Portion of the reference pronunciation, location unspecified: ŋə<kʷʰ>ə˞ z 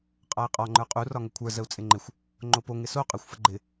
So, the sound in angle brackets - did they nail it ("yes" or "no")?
yes